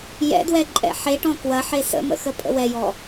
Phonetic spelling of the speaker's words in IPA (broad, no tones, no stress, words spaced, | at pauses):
jɛ̰dwɛǃʼɛ̰ ħeʈɔ̃ kwɐħe sə̰mə̰xəpʼə̰ wɛjɔ